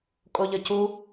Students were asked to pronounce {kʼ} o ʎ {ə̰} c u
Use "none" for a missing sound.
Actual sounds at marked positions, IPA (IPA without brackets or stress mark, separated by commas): kʼ, ə